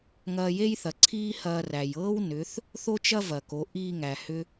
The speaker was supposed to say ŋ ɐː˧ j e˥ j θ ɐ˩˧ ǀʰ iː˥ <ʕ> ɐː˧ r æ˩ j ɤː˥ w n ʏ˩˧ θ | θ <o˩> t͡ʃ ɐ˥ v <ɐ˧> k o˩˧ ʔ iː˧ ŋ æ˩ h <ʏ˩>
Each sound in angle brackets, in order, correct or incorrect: incorrect: h, incorrect: o˥, incorrect: ɐ˩, incorrect: ʏ˧

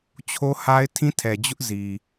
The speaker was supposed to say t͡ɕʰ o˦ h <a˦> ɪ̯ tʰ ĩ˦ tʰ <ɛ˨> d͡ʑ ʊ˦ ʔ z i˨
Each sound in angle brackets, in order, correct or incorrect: correct, correct

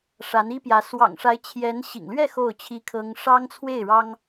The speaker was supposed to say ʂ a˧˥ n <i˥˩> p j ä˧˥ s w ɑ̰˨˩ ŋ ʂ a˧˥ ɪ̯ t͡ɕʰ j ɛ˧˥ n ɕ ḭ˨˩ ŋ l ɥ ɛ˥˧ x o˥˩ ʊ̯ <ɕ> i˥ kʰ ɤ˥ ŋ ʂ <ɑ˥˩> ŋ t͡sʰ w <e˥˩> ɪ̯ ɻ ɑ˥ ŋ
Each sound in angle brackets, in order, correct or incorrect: incorrect: i˥, incorrect: t͡ɕʰ, incorrect: ɑ˥, correct

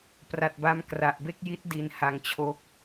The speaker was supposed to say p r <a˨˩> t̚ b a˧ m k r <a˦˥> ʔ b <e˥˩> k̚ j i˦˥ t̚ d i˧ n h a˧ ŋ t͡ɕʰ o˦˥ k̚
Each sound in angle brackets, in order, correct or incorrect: correct, incorrect: a˨˩, correct

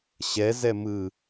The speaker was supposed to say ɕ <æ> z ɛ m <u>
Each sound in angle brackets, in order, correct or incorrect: incorrect: ɛ, incorrect: ɯ

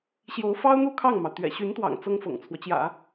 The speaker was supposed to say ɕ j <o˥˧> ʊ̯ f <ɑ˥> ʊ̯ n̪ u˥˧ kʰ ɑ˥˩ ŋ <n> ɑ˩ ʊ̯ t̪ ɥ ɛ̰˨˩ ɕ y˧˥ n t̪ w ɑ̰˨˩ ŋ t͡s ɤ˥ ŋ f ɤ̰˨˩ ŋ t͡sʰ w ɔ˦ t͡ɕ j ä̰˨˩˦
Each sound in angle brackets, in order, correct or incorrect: incorrect: o˧˥, correct, incorrect: m

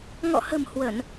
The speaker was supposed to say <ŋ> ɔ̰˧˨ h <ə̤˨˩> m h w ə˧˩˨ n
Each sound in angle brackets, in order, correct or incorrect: correct, correct

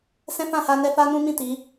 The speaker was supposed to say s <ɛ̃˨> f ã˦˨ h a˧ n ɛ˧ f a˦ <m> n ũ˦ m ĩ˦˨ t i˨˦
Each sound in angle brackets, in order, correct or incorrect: incorrect: ɛ̃˦, incorrect: none

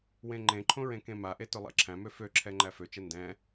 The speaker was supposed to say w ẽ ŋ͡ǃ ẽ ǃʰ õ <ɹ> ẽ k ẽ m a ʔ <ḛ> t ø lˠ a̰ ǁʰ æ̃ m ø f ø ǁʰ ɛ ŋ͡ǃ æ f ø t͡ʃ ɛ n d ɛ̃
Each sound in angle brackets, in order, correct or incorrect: correct, incorrect: e

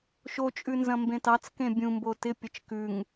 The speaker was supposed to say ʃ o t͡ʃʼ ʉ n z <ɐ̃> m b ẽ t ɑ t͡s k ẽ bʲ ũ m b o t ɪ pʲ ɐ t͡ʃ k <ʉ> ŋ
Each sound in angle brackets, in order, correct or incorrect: correct, correct

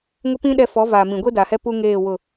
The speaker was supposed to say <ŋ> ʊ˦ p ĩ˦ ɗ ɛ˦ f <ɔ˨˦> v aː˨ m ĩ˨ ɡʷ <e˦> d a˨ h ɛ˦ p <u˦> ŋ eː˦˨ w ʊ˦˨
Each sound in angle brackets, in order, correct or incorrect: correct, correct, correct, correct

